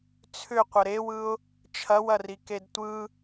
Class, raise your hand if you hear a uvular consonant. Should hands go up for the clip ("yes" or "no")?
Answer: yes